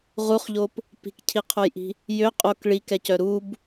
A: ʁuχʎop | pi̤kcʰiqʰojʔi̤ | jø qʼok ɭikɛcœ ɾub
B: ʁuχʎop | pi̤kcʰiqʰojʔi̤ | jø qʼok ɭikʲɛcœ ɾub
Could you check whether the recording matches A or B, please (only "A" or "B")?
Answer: A